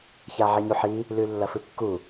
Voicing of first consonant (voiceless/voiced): voiceless